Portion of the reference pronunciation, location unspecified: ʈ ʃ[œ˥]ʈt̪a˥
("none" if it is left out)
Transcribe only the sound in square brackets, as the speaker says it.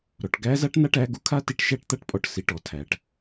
æ˥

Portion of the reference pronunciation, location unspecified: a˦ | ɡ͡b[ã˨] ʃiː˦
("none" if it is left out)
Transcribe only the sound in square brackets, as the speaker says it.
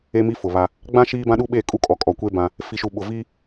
ã˦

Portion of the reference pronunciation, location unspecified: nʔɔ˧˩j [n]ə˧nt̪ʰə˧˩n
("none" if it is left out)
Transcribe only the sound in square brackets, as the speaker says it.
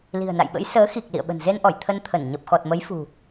t̪ʰ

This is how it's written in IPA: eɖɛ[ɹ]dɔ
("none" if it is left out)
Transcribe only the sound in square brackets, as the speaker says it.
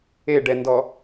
n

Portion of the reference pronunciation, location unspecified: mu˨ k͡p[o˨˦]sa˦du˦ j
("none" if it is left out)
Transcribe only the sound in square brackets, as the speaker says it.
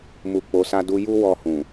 o˨˦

